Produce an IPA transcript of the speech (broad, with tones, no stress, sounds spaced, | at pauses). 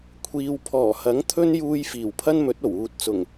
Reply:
kʷʰ iː˨ w pʰ ɔː˨˩ h ɐ˨˥ ŋ t̪ʰ ɵ˥ n j uː˧ j f iː˨˩ w pʰ ɐ˥ n m ɵ˨˥ t̚ o˨˩ w uː˨ t̚ t͡s ʊ˨˩ ŋ